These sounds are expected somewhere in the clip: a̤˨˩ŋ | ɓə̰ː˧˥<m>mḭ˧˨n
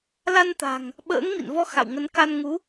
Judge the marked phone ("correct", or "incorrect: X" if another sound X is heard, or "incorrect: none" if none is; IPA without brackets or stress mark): incorrect: ŋ